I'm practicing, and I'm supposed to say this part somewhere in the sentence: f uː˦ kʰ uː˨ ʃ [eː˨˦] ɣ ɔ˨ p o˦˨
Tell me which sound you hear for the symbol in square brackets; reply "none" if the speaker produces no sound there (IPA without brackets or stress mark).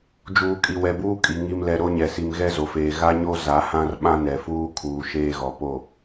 eː˦